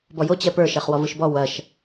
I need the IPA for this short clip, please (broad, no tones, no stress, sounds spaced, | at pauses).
b ɔ j o t͡ɕ ɛ p ə˞ ʃ ɛ χ w ɔ v ɯ ʃ b ɔ w ɐ ʃ